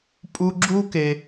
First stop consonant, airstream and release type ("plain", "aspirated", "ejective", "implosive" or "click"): ejective